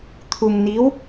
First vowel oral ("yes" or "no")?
yes